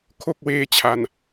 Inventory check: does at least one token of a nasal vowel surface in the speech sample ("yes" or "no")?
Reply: no